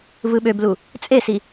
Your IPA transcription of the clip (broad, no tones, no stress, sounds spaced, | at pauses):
v ɯ ɓ ø b l u | t͡sʼ e s i